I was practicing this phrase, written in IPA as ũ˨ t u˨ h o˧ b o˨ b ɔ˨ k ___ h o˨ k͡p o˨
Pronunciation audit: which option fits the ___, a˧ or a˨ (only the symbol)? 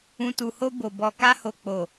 a˧